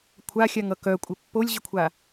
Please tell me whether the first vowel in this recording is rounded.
no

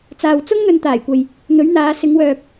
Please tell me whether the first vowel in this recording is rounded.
no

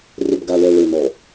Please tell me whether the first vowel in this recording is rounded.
yes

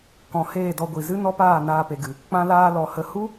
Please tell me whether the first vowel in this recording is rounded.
yes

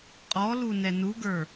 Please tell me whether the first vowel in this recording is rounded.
yes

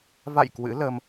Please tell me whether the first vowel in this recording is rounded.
no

